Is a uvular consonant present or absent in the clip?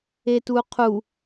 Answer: present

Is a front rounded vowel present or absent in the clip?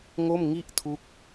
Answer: absent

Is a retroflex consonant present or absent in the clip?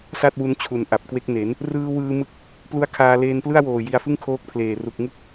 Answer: absent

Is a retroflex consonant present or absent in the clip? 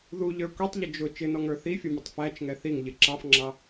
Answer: absent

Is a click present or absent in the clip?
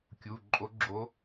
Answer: present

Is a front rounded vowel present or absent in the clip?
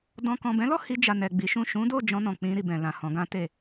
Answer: absent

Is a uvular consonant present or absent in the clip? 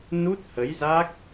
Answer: absent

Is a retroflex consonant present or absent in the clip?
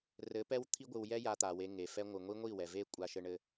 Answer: present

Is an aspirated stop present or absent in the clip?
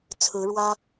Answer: present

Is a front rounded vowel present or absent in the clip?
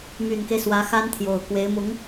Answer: present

